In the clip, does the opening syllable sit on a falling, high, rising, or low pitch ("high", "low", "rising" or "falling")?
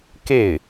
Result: falling